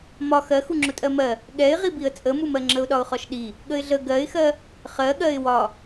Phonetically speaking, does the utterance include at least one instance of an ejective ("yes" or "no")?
yes